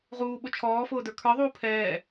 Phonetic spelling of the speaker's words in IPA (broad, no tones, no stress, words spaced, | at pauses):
ʁuːɓʊ t͡ʃʰɔːfʊːdə˞ kʰə˞ðˤuː pʰɛː